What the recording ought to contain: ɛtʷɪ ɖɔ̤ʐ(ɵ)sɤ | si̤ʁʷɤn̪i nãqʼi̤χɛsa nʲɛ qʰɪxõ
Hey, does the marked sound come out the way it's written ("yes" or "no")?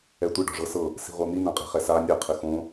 no